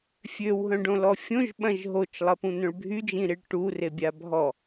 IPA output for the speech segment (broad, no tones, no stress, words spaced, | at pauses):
fʲøwɦœ̃ɖõlɔ fʲõʒɓɐ̃ʒ ɦot͡ʃlˠɐpũn̪œ̃ɭ bʱyd͡ʒĩɾiɭ ʈurebʲa bʱɔ